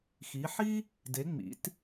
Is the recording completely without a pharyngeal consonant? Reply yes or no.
no